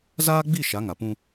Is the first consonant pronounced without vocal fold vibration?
no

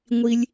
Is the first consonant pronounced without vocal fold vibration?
no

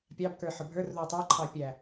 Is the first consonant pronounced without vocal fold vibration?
yes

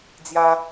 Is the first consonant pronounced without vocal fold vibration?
no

